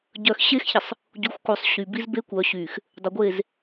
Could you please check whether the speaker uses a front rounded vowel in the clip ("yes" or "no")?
yes